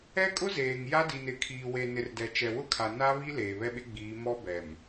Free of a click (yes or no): yes